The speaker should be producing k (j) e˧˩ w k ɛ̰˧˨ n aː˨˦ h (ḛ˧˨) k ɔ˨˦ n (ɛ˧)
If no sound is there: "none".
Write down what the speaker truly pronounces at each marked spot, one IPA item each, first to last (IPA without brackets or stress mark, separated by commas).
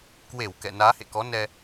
w, ḛ˧˨, ɛ˧